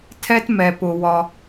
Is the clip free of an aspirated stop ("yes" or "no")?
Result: no